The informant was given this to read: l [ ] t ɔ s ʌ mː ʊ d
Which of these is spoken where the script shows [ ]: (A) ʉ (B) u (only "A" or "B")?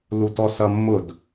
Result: B